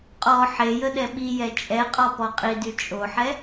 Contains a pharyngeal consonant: yes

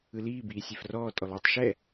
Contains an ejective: yes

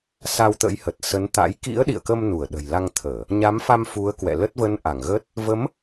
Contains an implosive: yes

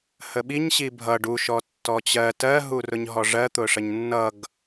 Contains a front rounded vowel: no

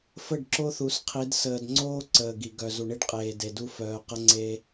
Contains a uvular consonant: yes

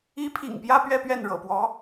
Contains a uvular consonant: no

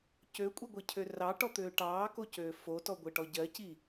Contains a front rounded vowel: yes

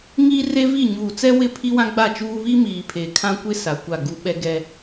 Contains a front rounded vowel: no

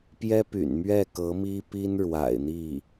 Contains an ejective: no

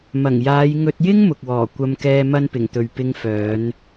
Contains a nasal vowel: no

